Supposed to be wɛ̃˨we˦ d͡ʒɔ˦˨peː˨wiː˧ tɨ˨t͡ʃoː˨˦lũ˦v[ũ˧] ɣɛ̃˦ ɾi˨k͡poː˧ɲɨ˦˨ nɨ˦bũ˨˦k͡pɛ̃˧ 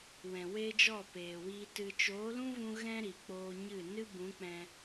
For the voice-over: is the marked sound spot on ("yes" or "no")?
yes